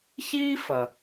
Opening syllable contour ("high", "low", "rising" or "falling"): high